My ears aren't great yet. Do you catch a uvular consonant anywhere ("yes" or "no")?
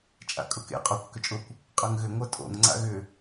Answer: yes